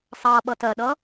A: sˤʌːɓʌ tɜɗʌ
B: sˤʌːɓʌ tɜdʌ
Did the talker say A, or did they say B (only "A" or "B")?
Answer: A